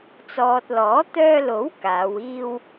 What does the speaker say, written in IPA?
t͡s ɔː˨ t̚ l ɔː˨˥ t̪ œː˧ l o˨˥ w k aː˨˧ w iː˧ w

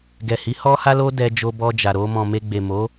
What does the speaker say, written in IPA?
ɡ ɛ˨ h i˨˦ h ɔ˦ h a˦ l o˦ d ɛ˧ d͡ʒ o˧ b ɔ˧ d͡ʒ a˨ ɾ o˧ m ɔ̃˨ m e˧ ɡ͡b e˨ m o˨˦

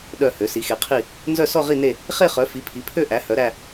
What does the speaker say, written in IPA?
ɗ œ˥˧ h ø˨˥ s i˨˥ x e˨˥ qʰ i˥˧ | n z œ˥˧ s ɔ˥˧ ʁ i˥˧ n e˥˧ | χ e˥˧ χ œ˨˥ f i˨˥ pʰ i˨˥ pʰ ø˥˧ ʔ æ˨˥ h œ˨˥ ɾ æ˥˧

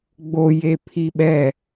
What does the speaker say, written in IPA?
ɡ͡b o j e pʰ i ɓ ɛ

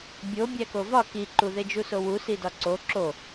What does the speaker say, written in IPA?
bʲ o bʲ æ k o v ɒ k i ǃ u ð e d͡ʒ u s o w u s i d ɒ ǀ o ǁ o

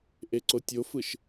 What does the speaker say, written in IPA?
ʔ e ǀ o tʲ o f ɯ ʃ

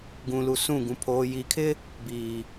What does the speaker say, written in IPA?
ɡ ũ˨ l u˨ s ũ˦˨ ɡ ũ˨ pʰ oː˨ j i˨ kʰ ɪ˦ | b iː˨

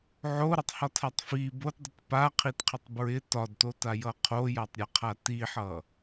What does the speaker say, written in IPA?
ʕ o ɾ ʌ tˤ h ɒ tʰ a tˤ f i b o t dˤ i t p a qʰ i t qʰ ə tˤ b ɹ ɪ t ɒ d t o t a j ʌ qʰ o j a tˤ ɾʲ a qʰ a t i ħ ʌ

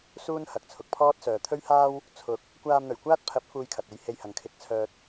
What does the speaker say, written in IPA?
s uː˥ n h ɐ˨ k̚ t͡sʰ ʊ˨ k̚ pʰ ɔː˥ t̚ s œː˨ t̪ʰ ɵ˥ ɥ h aː˥ w | t͡sʰ ʊ˨˥ k̚ | kʷ aː˧ m n̪ ɵ˨˩ ɥ kʷ aː˥ t̚ pʰ ɐ˨˥ p̚ f uː˧ j kʰ ɐ˨ t̚ e˧ j h e˧ j h ɐ˨ ŋ kʰ ɪ˨˥ k̚ t͡sʰ œː˧ t̚

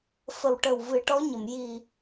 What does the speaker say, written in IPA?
f ə˨˩ w ʈ ə˨˩ w v ɨ˨˩˦ ʈ ɔ˧˥ ɲ ə˨˩˨ m j i˨˩

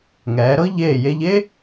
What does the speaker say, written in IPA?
ŋ ɛː˩˧ ɾ ɤ˥ ʎ eː˧˩ j e˧ ʎ e˥

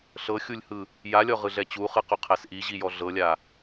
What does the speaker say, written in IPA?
ɬ ɤ xʲ u lʲ h ɯ | j a lʲ ɔ ʁ ɯ ɮ ɛ t͡ɕ u χ ɯ q u qʰ ɛ s ʔ i ʑ i j ɔ ɮ ɤ lʲ a

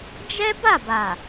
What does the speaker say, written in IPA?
d͡ʒ ɛ˦ b a˦˨ b a˨

